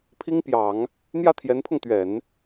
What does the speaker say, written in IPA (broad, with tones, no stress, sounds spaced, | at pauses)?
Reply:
pʰ i˥ ŋ p j ɑ˨˩˦ ŋ | n̪ j ä˥˩ t̪ʰ j ɛ˧˥ n pʰ ʊ˧ ŋ t̪ ɥ ɛ˨˩˦ n